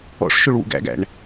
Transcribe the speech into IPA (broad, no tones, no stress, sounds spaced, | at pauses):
ɔ̰ ʂ ʃ ʊ ɭ w ṵ ɡ æ̰ ɡ æ̰ ɳ